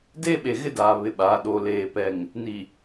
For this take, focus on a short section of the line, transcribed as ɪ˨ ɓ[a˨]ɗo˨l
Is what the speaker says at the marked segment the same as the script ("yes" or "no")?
no